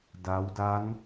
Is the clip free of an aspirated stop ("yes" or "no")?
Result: yes